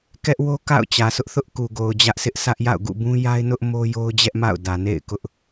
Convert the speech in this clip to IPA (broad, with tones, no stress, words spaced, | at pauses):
kɛ˦ʔwo˦ ka̰˦˨ʊ̯t͡ɕä˨sʊ˦ʔθʊ˦ʔ ku˨ɡo˨ʊ̯ d͡ʑä˦ʔsʰɪ˦ʔ sä˦ʔja̰˦˨ʊ̯ ɡṵ˦˨bũ˦ja˦ɪ̯nʊ˦ʔ mo˦jo˦ʊ̯d͡ʑɛ˦ʔ ma̰˦˨ʊ̯ dä˨nḛ˦˨ɪ̯kʊ˦ʔ